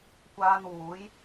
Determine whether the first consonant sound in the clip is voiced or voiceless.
voiceless